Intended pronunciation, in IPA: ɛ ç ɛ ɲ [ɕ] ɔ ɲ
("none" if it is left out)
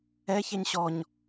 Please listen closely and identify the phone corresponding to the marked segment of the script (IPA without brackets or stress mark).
ɕ